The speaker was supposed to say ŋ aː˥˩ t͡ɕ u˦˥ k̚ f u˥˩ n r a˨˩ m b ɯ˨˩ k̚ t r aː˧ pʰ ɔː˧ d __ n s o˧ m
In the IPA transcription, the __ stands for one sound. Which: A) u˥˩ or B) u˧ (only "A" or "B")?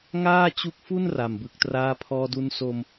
B